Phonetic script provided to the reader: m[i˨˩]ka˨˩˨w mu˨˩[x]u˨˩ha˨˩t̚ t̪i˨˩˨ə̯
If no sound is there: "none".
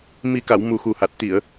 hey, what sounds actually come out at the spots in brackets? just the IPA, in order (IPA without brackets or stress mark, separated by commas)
i˨˩, x